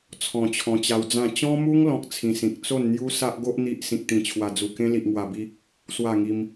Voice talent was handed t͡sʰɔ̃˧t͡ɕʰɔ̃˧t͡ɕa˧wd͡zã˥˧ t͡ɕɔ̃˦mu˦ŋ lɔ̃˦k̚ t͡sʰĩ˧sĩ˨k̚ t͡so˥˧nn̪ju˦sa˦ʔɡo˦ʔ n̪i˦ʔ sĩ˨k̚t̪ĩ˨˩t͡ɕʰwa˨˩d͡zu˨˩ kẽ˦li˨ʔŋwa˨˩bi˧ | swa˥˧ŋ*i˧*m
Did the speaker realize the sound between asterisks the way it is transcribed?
yes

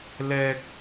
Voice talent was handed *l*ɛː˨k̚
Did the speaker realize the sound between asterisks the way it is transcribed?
yes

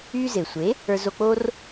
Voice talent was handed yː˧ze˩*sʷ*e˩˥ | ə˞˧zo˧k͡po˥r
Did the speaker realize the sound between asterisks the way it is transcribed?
yes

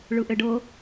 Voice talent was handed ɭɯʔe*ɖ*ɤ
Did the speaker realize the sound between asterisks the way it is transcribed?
yes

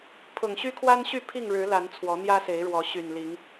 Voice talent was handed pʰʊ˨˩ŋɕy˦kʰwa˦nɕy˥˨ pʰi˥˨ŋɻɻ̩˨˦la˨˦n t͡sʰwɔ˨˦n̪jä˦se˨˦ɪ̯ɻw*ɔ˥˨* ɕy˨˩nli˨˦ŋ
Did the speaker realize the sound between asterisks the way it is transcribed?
no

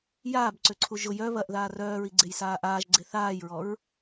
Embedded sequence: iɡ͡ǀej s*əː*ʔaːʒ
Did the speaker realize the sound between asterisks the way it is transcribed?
no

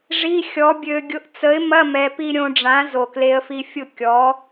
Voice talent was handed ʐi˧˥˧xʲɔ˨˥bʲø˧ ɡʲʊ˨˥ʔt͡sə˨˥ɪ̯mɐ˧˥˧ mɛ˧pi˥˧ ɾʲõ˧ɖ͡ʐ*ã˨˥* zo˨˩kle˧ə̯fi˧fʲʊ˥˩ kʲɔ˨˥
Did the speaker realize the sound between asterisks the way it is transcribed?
yes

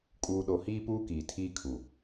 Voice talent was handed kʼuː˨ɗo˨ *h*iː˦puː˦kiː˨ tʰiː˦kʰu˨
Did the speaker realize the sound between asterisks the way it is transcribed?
yes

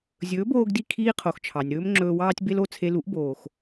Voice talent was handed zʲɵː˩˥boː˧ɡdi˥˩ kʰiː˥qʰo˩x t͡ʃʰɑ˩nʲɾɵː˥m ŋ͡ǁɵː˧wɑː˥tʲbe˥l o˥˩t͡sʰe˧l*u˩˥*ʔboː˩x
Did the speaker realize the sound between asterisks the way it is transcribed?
yes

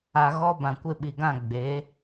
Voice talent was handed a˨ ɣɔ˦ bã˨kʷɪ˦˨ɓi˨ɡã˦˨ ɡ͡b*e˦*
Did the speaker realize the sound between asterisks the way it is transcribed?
no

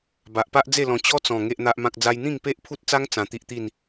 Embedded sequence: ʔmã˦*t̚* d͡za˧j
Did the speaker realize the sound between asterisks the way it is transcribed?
no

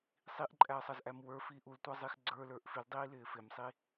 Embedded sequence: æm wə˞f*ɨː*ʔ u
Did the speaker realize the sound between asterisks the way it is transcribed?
no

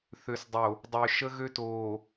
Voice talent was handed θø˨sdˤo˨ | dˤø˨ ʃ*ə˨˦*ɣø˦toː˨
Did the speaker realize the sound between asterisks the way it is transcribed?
no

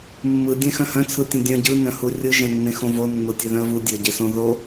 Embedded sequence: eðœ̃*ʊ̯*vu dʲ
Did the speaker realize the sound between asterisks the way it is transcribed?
no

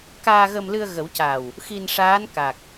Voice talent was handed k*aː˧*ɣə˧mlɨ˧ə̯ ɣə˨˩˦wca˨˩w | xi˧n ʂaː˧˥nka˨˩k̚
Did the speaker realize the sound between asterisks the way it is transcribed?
yes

